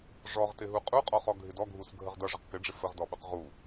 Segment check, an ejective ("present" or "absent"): present